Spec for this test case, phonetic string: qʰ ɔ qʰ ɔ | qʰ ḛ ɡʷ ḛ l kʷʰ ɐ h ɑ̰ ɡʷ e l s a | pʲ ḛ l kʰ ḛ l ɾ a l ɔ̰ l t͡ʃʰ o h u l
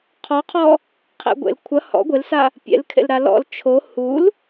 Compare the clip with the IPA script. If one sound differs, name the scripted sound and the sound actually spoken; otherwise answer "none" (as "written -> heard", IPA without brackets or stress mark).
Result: ɑ̰ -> ɔ̰